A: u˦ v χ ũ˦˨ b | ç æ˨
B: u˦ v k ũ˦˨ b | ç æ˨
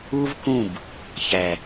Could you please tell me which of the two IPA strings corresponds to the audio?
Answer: B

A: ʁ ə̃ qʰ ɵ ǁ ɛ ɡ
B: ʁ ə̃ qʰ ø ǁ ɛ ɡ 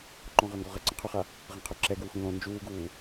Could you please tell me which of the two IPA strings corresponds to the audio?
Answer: B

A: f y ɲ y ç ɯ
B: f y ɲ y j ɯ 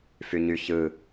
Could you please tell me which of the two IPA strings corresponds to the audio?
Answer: A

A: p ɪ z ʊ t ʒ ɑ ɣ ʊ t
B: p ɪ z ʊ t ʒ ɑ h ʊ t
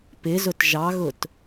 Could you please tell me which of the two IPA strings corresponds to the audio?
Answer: A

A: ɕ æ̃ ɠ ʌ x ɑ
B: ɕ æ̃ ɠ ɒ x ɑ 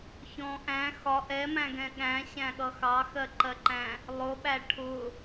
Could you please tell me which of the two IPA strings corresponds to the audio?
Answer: A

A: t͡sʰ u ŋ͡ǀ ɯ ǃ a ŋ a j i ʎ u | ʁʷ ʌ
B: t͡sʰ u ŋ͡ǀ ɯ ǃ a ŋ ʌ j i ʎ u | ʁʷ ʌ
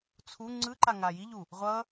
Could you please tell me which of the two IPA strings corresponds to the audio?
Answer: A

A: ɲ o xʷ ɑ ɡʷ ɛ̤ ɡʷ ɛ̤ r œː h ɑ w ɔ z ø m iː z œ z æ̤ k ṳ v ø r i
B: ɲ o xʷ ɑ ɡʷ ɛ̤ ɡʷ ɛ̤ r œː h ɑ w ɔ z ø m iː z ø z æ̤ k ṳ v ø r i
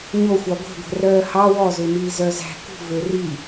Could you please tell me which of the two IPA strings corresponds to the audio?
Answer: A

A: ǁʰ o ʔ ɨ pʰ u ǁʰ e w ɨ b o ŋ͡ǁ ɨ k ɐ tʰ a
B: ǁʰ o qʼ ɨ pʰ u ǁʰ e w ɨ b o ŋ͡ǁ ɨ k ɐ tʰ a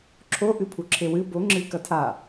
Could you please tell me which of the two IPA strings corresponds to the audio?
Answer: A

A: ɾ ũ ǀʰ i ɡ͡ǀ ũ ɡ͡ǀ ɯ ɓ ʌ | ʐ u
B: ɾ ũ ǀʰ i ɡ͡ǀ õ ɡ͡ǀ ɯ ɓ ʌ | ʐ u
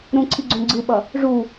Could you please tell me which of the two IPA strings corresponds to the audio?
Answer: B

